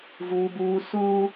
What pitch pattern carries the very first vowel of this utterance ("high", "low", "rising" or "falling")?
high